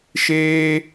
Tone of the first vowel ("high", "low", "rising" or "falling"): high